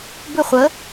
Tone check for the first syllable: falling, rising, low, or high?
falling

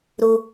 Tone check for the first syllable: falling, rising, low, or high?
high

